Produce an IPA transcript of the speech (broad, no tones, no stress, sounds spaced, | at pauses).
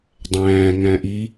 dˤ æ̃ː ŋ æ̃ ʔ i